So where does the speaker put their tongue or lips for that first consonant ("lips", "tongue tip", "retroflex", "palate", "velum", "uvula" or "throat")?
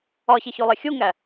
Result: palate